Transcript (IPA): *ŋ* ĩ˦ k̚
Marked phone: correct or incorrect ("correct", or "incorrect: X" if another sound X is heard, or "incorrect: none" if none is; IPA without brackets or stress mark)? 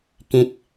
incorrect: k